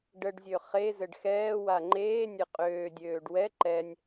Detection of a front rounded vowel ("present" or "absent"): present